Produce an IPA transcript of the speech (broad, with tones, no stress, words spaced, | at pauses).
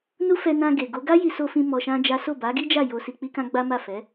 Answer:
nu˦fɛ˧ nã˧ ɡe˨ɡo˨˦ ɡa˦ji˧so˧fĩ˧ mɔ˧ʃã˦d͡ʒa˦ so˦˨ba˨˦ɡi˦d͡ʒa˦˨ jo˧si˧k͡pi˦kã˦ ɡ͡ba˦ ma˦˨fɛ˨˦